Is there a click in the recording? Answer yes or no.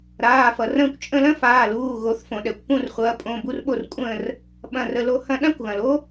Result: no